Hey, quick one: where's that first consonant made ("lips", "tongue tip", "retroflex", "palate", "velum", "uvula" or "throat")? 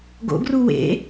velum